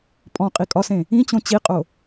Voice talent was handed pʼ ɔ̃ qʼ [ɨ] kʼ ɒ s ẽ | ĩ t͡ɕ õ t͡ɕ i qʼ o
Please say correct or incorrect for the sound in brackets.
incorrect